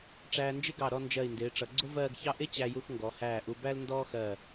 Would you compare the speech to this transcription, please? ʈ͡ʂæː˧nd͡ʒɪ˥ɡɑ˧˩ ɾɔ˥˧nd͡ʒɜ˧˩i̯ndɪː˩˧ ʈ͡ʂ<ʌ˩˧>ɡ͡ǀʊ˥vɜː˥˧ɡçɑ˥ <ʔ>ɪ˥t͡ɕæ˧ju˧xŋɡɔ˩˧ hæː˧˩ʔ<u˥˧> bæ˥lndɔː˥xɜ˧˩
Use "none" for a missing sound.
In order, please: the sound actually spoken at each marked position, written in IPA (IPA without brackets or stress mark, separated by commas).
ʌ˩˧, ʔ, u˧